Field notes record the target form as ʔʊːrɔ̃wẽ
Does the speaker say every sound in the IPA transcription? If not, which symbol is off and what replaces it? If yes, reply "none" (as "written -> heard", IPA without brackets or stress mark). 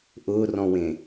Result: none